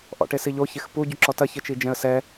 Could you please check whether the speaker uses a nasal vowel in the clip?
yes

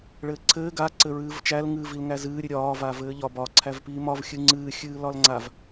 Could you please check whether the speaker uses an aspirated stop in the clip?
yes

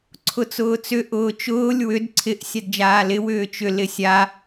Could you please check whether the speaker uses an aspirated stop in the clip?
yes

